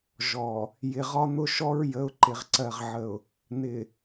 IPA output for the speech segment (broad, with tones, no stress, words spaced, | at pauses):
ʒɔ˨ | jɪ˨ʁɒ˦n̪ʊ˦ʃɔ˦ɹ jə˨˦ʊ̯ǃɪ˨ʁǀɜ˨ʁʕə˨ʊ̯ | n̪ɪ˨